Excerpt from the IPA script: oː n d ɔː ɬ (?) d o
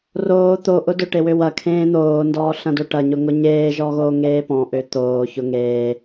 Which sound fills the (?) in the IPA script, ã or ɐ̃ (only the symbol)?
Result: ɐ̃